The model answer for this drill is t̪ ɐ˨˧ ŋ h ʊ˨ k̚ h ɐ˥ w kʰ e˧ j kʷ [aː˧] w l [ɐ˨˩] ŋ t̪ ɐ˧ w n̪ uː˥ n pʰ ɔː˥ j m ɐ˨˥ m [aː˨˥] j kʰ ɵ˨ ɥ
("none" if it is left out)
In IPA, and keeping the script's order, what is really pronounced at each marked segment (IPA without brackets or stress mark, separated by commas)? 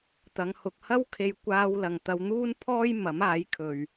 aː˧, ɐ˨, aː˨˥